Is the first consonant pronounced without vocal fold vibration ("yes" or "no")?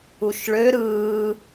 yes